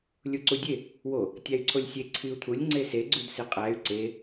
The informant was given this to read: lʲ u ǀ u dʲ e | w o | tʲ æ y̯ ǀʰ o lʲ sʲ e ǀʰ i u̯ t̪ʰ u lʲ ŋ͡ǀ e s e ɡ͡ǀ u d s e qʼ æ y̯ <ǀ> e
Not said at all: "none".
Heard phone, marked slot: ǀ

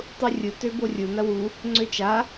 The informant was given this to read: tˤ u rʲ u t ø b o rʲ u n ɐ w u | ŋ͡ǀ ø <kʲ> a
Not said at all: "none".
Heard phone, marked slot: t͡ʃ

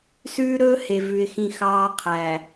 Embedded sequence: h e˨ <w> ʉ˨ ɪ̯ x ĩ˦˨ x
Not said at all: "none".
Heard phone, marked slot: v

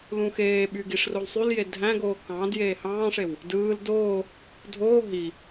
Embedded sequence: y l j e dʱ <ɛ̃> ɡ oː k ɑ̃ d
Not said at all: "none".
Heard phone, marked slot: æ̃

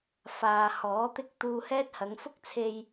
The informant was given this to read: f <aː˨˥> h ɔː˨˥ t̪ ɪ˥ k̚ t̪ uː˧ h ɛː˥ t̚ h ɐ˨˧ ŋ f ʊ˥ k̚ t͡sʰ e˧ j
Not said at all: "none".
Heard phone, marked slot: aː˨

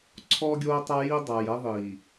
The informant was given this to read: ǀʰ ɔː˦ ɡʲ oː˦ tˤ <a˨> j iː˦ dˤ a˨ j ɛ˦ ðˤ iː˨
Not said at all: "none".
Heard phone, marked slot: a˦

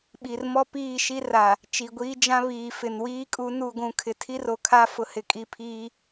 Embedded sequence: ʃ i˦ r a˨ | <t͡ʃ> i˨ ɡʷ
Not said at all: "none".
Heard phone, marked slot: t͡ʃ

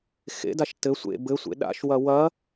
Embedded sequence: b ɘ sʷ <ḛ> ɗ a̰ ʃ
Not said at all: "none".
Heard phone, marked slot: ḛ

